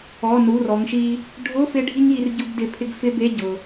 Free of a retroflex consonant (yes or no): no